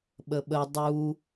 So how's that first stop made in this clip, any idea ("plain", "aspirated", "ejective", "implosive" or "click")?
implosive